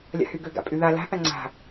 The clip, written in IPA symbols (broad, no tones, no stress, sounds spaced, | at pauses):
lʲ a̰ h y ɡ ø ɡ a̰ pʼ y ð a l a̤ θ a ŋ͡ǀ a̤